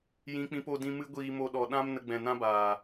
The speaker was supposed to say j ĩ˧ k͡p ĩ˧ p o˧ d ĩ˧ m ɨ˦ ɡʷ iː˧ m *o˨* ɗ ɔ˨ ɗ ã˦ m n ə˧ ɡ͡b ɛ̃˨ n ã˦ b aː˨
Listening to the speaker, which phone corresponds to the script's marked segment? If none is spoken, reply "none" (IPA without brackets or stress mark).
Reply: o˧